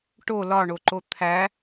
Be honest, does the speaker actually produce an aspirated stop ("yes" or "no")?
yes